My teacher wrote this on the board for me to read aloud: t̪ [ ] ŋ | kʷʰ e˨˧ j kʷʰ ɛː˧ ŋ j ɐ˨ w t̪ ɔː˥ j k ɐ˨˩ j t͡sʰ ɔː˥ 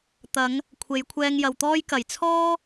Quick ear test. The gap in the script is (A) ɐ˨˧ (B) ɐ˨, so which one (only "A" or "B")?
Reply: A